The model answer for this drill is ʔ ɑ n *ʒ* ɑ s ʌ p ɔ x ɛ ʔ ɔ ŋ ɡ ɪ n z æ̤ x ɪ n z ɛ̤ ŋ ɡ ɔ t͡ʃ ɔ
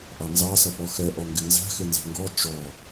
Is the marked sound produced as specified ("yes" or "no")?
no